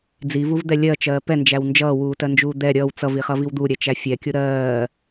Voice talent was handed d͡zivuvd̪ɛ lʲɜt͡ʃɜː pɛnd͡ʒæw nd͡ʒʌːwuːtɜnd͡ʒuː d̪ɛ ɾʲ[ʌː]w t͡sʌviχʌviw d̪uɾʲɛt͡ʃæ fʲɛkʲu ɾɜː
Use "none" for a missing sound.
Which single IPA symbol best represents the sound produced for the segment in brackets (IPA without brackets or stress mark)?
ʌː